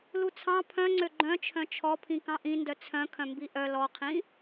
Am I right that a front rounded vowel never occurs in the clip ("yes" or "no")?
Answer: no